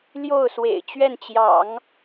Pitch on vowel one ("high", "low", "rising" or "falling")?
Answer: falling